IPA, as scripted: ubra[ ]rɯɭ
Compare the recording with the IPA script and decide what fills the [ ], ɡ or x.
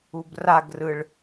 ɡ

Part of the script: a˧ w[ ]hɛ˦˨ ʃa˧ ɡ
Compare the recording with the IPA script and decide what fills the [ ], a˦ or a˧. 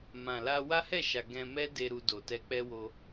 a˦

